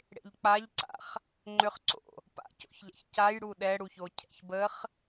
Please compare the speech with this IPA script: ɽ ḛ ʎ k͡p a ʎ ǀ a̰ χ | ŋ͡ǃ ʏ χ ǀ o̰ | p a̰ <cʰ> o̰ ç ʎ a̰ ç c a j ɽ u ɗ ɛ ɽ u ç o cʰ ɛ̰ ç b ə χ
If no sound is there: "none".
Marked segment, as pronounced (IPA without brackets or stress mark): c